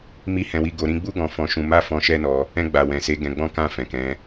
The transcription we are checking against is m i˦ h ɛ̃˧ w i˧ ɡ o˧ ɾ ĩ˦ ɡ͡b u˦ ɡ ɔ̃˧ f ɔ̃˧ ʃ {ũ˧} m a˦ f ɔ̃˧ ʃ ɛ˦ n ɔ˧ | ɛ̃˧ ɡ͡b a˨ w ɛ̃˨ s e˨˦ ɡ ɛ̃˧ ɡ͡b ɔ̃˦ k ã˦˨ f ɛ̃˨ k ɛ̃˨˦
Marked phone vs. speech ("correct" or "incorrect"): correct